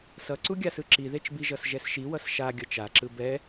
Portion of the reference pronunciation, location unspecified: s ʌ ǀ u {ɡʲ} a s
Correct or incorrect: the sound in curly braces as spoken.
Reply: correct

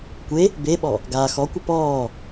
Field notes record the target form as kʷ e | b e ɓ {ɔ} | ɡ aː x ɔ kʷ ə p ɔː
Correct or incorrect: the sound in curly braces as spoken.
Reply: correct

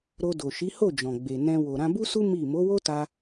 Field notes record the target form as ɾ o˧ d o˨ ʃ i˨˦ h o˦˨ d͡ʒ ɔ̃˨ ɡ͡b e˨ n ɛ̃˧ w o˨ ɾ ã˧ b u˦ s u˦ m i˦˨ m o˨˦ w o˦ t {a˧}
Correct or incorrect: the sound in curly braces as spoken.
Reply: correct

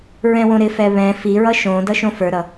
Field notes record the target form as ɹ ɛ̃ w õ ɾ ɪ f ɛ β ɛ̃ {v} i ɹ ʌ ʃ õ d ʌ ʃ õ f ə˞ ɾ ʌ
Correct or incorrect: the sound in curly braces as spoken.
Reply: incorrect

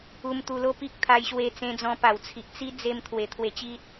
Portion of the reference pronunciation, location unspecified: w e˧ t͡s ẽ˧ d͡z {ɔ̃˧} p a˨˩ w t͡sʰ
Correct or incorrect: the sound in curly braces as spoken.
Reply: correct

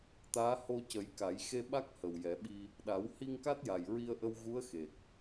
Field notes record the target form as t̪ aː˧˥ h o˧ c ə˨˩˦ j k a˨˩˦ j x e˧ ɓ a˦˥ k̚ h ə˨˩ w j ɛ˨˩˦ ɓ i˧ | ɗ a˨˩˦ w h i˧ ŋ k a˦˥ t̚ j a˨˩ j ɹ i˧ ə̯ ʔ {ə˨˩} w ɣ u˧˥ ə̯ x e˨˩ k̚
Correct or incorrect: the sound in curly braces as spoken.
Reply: incorrect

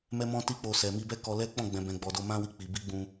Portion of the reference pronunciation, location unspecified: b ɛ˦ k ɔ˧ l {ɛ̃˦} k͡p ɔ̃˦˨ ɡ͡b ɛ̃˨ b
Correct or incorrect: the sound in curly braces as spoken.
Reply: incorrect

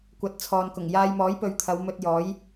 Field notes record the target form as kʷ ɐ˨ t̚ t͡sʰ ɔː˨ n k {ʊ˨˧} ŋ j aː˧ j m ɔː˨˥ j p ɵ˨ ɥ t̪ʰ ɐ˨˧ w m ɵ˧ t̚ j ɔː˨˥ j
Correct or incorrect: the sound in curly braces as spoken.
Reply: incorrect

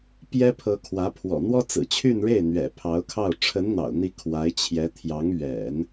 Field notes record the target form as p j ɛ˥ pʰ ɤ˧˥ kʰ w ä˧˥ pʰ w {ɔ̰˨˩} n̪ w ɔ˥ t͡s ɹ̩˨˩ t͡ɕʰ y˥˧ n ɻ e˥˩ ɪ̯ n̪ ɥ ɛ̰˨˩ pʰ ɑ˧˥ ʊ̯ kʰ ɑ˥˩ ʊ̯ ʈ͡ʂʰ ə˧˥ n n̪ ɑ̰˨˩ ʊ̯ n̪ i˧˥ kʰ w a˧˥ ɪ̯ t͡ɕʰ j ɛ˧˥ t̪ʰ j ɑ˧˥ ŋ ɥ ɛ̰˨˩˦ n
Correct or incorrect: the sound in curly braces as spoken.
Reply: correct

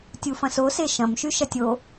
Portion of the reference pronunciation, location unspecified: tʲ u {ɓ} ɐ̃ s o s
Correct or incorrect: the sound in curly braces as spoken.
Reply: incorrect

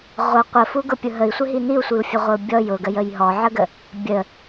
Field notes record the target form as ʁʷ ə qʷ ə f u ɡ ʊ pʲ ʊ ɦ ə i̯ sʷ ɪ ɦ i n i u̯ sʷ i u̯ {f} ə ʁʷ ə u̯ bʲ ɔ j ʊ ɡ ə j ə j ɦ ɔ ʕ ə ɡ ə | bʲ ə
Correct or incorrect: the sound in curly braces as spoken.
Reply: incorrect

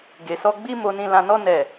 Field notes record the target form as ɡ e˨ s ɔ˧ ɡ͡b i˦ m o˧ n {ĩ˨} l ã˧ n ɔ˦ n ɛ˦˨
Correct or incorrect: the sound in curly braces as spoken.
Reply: incorrect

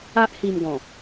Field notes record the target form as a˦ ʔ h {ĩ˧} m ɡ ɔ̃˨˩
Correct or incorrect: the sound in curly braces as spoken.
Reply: incorrect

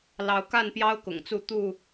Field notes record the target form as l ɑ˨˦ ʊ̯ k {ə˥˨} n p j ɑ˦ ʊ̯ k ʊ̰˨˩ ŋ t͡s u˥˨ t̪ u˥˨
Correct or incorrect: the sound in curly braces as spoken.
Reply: incorrect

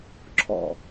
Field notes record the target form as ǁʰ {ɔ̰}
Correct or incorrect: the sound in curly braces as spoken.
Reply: correct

